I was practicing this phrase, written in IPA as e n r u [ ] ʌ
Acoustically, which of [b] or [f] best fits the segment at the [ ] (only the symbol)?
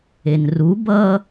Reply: b